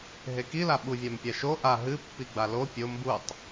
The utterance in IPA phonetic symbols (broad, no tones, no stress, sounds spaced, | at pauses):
ɦ e k i l a ɓ u vʲ a m pʲ a ʃ o ʔ a ɦ ɨ pː i ɡ͡b a l o pʲ o m b u tˤ